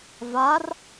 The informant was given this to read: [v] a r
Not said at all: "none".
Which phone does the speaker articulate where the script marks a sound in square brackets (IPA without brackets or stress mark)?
v